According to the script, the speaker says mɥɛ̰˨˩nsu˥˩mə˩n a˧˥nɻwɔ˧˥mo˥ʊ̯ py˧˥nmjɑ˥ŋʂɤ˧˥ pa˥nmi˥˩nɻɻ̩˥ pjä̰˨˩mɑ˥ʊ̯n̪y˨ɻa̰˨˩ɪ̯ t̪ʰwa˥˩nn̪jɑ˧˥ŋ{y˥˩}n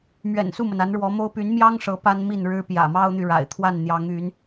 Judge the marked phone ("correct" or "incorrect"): incorrect